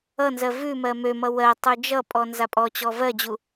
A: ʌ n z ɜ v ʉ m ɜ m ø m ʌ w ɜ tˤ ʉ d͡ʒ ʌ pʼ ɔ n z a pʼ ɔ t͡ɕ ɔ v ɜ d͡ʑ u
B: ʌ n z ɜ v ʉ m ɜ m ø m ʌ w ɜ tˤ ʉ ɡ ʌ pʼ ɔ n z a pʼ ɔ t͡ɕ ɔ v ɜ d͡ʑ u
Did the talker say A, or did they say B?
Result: A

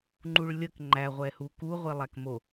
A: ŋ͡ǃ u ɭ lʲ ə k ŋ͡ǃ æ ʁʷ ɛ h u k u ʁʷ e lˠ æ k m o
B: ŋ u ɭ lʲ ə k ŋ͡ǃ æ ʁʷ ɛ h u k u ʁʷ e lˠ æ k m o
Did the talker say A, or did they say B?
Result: A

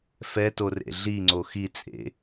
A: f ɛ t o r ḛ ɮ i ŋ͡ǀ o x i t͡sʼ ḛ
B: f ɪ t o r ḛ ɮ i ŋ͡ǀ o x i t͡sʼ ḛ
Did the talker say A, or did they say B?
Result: A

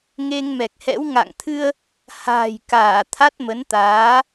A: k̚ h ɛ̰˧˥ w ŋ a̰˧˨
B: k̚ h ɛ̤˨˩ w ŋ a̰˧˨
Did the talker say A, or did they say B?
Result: A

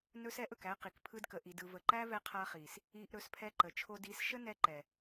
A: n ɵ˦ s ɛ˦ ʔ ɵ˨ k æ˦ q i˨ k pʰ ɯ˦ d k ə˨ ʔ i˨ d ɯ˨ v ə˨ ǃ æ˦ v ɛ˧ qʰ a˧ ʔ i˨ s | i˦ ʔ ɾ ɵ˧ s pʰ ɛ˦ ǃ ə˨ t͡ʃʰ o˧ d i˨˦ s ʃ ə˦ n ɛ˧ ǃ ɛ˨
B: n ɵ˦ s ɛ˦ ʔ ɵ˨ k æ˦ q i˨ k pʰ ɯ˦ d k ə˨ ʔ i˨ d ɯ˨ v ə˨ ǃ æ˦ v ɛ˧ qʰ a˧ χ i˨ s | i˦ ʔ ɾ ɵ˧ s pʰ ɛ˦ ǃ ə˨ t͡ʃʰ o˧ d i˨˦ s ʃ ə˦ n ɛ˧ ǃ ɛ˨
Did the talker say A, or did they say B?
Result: B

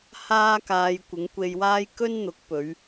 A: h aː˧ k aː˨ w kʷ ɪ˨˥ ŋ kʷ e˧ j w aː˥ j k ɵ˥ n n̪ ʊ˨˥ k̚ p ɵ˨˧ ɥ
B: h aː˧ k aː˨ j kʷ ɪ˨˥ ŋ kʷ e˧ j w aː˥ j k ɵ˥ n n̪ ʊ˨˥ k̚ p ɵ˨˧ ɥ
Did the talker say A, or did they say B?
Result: B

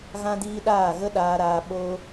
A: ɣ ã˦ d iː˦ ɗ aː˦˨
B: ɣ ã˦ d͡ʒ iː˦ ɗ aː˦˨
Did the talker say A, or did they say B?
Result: A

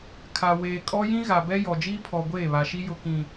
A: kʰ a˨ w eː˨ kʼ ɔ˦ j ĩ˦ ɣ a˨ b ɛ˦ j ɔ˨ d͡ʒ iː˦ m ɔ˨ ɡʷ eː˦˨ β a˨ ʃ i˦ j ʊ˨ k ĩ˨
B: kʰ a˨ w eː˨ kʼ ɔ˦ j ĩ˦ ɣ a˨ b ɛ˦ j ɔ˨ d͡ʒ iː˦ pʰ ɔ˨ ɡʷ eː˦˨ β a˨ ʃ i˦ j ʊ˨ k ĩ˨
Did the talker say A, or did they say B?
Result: B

